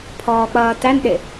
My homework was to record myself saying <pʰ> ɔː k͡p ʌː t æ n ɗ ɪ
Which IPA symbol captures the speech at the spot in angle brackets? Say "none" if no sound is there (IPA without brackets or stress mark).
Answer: pʰ